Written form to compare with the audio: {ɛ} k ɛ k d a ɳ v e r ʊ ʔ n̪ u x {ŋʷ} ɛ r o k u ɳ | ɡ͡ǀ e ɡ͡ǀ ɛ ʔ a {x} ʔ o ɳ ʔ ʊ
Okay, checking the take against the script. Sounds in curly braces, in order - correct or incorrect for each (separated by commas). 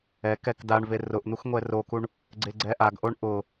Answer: correct, correct, incorrect